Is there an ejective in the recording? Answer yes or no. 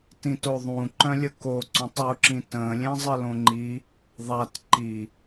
no